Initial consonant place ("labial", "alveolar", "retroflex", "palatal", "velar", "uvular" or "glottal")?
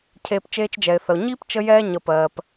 palatal